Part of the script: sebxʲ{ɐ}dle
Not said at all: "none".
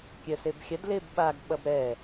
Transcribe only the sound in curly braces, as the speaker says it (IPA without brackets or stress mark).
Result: ɐ